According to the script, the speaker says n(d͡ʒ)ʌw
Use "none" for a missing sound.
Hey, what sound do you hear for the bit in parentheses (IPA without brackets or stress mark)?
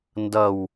d